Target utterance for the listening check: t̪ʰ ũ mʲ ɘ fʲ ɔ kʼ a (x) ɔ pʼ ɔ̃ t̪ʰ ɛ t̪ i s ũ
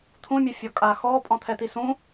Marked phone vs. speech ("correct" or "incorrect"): correct